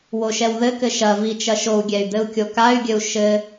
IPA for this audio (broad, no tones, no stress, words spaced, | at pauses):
woʃɛwðɘkɘ ʃɐ vit͡ʃɐʃou̯ɡʲɛy̯ d̪ɘu̯kʲokay̯ɡʲɘu̯ ʃɘ